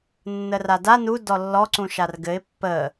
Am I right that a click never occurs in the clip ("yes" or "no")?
no